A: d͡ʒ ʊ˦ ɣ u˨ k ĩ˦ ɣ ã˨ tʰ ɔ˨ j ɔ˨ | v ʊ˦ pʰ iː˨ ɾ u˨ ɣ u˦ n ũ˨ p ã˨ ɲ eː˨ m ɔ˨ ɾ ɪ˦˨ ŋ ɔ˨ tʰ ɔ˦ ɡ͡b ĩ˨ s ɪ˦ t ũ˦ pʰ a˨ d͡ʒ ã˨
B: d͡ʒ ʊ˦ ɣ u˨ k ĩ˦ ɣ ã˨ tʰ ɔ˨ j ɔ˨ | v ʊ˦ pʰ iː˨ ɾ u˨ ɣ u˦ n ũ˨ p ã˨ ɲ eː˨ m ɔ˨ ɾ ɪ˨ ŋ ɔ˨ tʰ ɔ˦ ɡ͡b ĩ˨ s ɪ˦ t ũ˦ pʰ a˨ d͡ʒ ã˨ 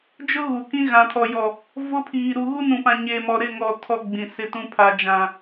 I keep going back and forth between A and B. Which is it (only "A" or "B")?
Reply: A